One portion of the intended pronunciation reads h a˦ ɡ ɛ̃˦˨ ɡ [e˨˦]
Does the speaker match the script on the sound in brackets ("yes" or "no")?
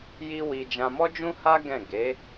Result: yes